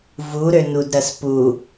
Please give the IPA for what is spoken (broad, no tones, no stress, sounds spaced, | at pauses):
v u ɾ ø n u d ɾ ɐ s p u